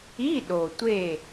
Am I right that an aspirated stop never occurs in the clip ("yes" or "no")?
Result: yes